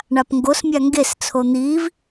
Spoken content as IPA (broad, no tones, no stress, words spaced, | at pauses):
ɳapŋɡos mʲaŋɡes t͡sʰon̪iːv